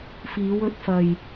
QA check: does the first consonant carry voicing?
no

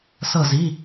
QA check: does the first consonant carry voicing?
no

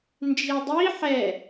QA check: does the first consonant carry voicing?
yes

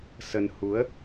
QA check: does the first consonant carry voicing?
no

